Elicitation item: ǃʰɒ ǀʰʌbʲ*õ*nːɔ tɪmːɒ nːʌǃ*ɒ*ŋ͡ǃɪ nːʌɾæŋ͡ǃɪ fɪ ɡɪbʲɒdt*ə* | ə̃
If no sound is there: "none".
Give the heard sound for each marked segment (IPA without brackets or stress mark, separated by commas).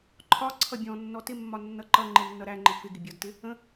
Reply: ɔ̃, ʌ, ɪ